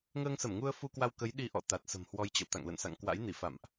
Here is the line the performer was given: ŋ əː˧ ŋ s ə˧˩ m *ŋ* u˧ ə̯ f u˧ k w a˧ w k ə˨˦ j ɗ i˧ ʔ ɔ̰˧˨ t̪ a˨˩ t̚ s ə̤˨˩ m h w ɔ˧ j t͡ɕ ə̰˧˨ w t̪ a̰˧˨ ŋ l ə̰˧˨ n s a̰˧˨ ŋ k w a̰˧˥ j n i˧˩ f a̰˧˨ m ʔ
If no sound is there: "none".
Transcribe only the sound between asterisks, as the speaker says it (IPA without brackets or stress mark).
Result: ŋ